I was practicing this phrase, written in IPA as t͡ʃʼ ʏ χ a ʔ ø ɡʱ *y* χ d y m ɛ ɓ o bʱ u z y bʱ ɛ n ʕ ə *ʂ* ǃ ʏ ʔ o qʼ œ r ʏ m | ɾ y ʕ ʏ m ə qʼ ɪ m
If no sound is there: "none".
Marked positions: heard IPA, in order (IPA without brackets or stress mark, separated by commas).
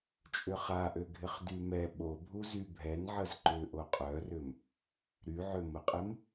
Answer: ɪ, z